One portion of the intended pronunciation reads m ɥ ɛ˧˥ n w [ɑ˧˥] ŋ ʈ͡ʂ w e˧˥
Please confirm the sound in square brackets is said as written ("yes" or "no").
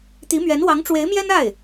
yes